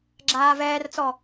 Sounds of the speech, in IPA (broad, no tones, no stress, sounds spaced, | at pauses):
ɡ͡ǁ aː v ɛː r t͡s ɔ